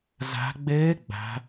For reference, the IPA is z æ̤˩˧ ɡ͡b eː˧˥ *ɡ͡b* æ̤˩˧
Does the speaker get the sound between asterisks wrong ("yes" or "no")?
no